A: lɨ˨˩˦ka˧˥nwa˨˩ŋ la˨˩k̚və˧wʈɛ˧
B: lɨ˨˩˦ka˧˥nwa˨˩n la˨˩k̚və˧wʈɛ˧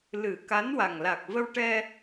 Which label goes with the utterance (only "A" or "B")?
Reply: A